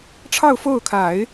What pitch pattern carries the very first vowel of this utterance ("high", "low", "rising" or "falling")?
falling